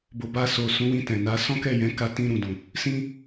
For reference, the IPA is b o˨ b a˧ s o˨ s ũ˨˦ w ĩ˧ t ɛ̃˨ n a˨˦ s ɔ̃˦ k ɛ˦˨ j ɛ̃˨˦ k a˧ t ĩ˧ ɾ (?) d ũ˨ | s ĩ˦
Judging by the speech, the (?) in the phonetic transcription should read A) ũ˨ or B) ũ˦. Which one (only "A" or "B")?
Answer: A